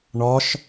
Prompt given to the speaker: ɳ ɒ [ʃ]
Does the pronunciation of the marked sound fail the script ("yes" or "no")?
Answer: no